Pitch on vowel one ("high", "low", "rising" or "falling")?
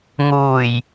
low